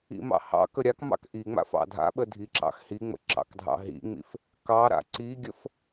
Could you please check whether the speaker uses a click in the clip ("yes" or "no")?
yes